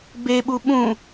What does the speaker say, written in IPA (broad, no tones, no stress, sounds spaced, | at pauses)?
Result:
b e ɓ u ɓ ũ